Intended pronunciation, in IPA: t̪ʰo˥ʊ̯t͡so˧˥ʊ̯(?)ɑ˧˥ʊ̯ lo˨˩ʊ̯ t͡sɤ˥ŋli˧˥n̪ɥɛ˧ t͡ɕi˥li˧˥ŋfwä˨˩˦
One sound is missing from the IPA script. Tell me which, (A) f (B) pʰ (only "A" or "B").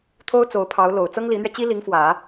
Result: B